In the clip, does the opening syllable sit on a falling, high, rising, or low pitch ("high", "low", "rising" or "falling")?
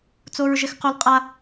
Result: high